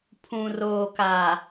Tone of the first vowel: low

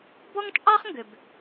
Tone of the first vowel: high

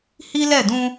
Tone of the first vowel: high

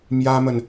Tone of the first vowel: high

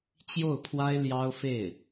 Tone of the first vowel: falling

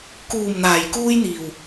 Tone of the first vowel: low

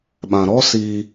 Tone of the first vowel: low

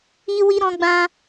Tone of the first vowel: high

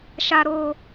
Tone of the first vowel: low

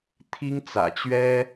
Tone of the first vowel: high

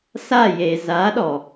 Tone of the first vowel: falling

